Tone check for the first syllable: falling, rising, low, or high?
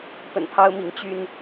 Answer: low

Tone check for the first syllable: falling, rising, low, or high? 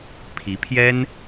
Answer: rising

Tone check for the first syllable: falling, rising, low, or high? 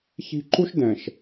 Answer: high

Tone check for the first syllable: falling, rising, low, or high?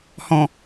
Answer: low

